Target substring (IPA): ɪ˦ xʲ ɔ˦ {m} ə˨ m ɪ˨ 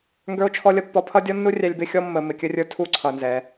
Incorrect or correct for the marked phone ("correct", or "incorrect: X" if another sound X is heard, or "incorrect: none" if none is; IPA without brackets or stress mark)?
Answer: incorrect: mː